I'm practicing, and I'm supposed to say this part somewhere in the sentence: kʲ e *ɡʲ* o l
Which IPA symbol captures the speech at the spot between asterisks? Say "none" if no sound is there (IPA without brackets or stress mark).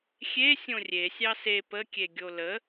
ɡʲ